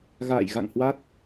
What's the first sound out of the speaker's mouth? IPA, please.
ɣ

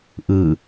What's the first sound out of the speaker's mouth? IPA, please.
ʔ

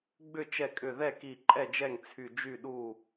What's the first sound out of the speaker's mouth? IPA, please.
ɡ͡b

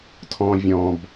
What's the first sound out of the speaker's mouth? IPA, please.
tʰ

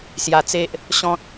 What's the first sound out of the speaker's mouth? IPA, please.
s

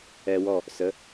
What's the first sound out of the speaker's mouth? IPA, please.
ɛ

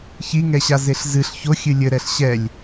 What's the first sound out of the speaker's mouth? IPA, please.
ç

